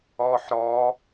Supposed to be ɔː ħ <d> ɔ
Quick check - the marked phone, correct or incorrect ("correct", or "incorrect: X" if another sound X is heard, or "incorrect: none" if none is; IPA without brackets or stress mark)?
incorrect: ɾ